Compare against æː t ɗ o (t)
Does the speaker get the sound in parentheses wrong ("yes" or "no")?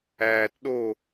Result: yes